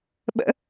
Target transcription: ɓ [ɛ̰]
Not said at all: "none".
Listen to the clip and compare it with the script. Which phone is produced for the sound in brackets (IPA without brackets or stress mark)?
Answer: ə̰